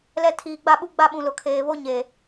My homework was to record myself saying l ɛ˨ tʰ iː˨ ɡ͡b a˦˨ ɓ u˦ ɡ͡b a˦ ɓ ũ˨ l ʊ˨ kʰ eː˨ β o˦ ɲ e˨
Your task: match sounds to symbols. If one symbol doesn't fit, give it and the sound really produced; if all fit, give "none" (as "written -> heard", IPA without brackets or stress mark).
none